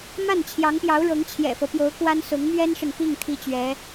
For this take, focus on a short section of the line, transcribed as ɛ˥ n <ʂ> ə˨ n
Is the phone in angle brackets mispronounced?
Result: no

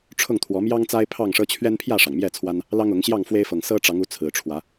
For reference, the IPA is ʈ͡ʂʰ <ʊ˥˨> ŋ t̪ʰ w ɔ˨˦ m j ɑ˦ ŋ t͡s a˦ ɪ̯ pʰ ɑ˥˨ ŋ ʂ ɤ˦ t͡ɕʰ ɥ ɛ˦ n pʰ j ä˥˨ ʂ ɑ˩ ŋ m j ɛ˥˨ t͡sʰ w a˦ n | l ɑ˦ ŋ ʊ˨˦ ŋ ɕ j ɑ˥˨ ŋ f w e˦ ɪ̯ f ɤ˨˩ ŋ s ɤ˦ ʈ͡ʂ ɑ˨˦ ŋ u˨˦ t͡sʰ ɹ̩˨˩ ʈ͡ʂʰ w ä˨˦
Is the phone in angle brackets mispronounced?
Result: no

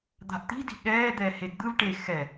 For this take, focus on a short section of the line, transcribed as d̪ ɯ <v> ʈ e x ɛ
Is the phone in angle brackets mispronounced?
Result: no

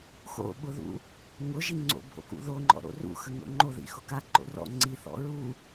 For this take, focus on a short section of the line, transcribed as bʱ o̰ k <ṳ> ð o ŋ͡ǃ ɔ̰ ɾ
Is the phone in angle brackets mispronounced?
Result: yes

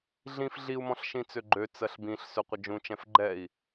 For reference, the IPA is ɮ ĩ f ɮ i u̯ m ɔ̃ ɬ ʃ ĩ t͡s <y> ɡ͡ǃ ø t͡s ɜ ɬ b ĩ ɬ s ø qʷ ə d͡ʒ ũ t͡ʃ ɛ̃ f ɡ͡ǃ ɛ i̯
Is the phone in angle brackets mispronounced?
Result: yes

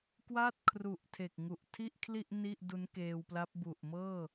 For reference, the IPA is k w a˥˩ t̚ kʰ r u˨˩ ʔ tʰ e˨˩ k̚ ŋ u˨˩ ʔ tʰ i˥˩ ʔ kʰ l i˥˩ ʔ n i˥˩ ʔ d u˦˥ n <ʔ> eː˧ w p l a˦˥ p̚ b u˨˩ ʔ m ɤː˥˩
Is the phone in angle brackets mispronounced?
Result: yes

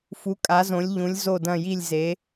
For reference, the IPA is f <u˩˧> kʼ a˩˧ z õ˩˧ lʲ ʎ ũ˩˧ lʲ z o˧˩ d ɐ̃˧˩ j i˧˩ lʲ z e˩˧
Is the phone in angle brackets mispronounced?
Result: no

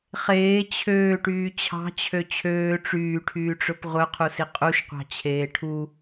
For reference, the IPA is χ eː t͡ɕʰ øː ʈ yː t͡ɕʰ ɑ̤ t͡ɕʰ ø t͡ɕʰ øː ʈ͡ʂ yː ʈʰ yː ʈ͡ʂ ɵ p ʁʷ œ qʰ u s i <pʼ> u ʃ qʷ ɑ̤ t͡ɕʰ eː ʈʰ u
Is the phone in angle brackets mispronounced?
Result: yes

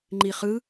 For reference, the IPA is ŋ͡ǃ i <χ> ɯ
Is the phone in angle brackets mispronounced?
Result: no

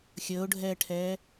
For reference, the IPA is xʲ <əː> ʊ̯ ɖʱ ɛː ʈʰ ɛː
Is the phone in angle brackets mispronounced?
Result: no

